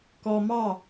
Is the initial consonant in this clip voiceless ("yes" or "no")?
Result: yes